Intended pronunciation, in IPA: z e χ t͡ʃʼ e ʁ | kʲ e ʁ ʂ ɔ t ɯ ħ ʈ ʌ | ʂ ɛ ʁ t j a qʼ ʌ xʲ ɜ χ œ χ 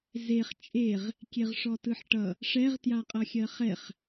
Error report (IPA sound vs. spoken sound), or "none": œ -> ɛ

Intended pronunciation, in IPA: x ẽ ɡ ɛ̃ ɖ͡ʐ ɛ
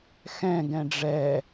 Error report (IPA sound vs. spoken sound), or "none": ẽ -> ɛ̃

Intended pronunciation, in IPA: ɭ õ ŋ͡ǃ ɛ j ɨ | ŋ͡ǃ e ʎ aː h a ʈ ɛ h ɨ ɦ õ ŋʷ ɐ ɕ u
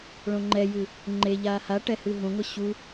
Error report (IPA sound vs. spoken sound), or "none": none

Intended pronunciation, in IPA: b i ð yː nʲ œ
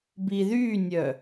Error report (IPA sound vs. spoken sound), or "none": none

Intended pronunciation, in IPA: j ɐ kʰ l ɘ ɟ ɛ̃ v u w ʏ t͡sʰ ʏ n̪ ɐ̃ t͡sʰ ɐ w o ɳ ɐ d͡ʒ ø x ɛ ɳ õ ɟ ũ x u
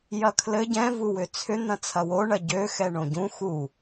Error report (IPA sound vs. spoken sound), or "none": d͡ʒ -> ɟ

